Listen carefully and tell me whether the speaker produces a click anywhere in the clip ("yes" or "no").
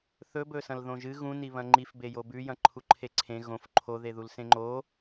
yes